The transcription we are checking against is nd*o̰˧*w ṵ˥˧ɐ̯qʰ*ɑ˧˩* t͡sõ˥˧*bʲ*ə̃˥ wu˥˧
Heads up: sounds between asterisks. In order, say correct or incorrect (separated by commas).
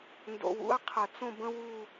correct, incorrect, incorrect